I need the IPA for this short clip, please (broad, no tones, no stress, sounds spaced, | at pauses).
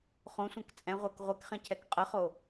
χ õ sʷ ɛ̃ k t͡sʼ ɛ̃ ʁʷ əː k ʁʷ e k χ ɛ̃ cʰ ɛ k qʼ ə χ o